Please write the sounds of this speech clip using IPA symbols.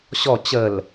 ɕ ɔ t͡ɕ ə l

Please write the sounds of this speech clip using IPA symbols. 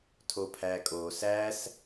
tʰ o pʰ æ kʼ o s æ s

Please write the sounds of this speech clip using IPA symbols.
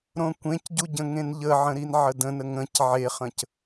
ɾ õ kʷ ẽ c ɟ u ɟ ə̃ ŋ ẽ n ʎ ə ʕ ə̃ ɾ i n ʕ ə d ə̃ n ə ŋ ə̃ c ʕ e χ ə̃ c

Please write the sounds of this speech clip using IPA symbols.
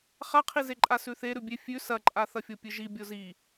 χ a qʰ i z e ǃʼ a s ʉ θ e ɾ ʉ bʲ e fʲ ʉ s ɐ ǃʼ a θ ɐ fʲ o pʲ ɨ ʒ i bʲ o z i

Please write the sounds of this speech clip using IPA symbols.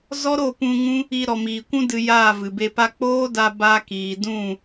z ɔ˦ ɾ o˦˨ p ũ˧ ŋ ũ˦ | i˧ ɾ ɔ˨ m iː˨ kʷ ũ˦ d ɨ˧ j aː˦˨ v ɨ˨ b e˧ p a˧ k͡p oː˦ d a˧ b a˧ k iː˨ d ũ˦˨

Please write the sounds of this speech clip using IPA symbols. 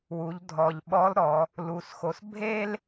w u˩˧ ʎ dʱ ɔ˩ ʎ ɓ ɔ˧˥ l ɾ ɔ˩˧ | l u˩˧ s x o˩˧ s bʱ e˥ l

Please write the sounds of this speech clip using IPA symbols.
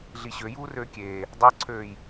ɮ i ɕ ø j uː r øː kʲ eː | dˤ ɑ ǀʰ øː j

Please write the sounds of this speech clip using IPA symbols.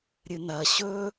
ɾʲ ɨ n ɐ ɕ ɵ

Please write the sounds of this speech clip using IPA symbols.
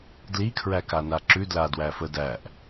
d l i kʰ ɹ æ k a n a ǁ ʉ d l a d w æ f ə d æ ʔ

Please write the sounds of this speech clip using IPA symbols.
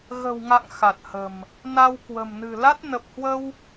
ɣ ə̤˨˩ w ŋ a̰˧˨ ŋ x a˨˩ t̚ h ə̤˨˩ m | n a˧ w k w ə̤˨˩ m n ɨ̤˨˩ l a˦˥ t̚ n ə˨˩ p̚ h w ə˧ w

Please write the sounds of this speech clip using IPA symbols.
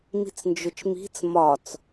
m i̤ t͡s n d͡ʒ ʊ t͡ʃ m i̤ t͡s m ɒ t͡s

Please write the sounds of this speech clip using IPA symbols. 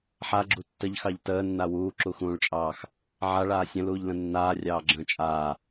ħ a ɡ͡ǁ u tː ə ʎ x ɑ ʎ t əː nː a w uː ǁ u x ũː ɭ t͡ʃʼ ɑː x | ʕ a ɭ aː sʲ ə̃ l uː ʎ l ə̃ nː aː rʲ ɑː ɡ͡ǁ ə̃ː t͡ʃʼ aː

